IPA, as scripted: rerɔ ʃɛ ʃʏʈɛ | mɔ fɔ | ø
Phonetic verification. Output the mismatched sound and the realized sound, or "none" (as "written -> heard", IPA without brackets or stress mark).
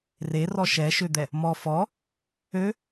ʈ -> d̪